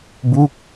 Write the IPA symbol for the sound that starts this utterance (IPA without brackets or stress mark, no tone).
b